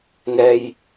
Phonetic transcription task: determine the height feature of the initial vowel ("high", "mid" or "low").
mid